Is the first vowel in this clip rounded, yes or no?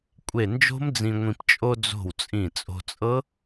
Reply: no